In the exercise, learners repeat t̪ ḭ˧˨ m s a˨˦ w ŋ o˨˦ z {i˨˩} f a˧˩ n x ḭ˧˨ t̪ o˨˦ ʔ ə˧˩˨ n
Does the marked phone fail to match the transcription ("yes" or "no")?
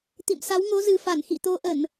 yes